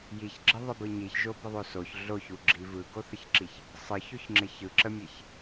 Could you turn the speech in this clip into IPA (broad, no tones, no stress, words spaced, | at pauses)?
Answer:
jiçɡ͡ǁəðˤɪbɯ ɲiçʒobəðˤo soç ɮoçuɡ͡ǁi vɯɡoθəçǁiç | sˤɯçoçŋ͡ǁɪ çɯǁəmʲɛç